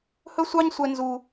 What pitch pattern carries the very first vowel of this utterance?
high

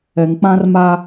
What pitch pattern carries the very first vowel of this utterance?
low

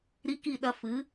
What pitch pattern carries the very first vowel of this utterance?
high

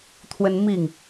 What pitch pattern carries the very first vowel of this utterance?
high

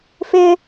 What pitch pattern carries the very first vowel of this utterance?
high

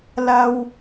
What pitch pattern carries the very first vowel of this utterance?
high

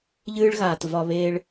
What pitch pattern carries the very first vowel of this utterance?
high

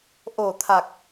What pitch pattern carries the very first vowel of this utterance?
low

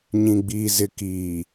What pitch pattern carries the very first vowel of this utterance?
low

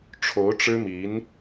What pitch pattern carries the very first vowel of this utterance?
rising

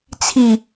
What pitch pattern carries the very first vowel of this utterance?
low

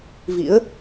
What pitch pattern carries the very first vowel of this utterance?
rising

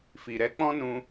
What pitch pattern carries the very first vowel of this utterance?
low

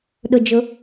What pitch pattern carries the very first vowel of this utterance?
low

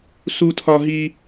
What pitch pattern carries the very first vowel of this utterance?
high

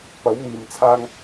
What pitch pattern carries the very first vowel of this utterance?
rising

